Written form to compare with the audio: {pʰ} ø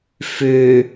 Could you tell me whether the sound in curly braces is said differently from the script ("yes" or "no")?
yes